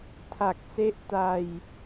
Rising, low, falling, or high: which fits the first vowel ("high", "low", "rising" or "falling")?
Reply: low